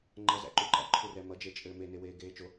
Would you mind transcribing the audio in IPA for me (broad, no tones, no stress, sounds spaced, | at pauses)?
ŋ͡ǃ ʌ z æ̰ ǃ u ǃ æ̰ ǃʰ u r ɛ m ʌ d͡ʒ e t͡ʃʼ ɘː m e n e w eː ɡ eː t͡ʃ o